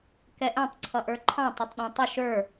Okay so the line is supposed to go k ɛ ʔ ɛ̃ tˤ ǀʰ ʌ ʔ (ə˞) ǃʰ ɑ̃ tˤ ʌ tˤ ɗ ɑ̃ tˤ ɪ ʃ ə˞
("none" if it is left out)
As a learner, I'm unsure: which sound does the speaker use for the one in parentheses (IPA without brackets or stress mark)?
ə˞